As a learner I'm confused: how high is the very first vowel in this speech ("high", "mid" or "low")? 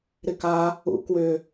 high